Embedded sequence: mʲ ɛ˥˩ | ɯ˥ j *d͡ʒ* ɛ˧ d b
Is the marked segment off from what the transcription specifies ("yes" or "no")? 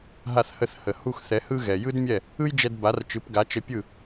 no